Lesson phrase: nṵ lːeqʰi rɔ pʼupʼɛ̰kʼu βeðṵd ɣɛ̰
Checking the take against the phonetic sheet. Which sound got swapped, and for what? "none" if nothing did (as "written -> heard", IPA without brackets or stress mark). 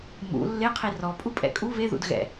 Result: n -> m